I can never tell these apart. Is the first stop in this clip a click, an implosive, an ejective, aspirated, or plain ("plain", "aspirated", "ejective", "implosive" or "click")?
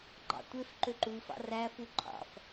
click